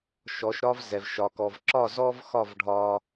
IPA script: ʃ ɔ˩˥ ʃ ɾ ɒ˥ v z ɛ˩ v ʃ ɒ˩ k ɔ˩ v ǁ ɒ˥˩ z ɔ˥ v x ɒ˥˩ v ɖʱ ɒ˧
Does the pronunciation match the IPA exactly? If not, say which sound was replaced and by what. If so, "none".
none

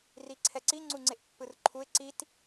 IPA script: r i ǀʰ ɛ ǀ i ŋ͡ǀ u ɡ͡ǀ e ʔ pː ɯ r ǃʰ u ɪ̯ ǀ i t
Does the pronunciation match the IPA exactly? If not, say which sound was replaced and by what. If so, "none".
ɡ͡ǀ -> ŋ͡ǀ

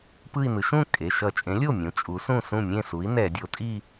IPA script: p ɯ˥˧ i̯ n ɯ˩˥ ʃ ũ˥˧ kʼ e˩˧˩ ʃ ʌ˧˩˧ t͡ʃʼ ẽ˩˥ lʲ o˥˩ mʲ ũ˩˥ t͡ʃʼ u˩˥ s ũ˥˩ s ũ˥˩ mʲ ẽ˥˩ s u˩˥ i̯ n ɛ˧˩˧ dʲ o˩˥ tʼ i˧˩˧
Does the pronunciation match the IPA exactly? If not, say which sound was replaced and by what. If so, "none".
i˧˩˧ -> i˥˧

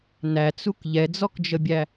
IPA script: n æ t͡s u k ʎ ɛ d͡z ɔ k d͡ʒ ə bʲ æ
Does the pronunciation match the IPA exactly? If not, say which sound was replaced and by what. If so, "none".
none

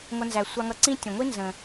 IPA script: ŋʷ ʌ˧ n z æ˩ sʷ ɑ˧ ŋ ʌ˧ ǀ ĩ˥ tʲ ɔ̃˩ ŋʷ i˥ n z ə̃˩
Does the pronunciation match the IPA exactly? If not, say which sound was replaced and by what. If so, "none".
none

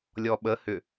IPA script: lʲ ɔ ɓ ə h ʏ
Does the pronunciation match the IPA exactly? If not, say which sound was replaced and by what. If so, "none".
none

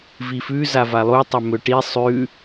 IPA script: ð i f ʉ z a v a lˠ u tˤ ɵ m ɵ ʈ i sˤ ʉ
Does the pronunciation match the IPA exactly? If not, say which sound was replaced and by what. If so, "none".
ð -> v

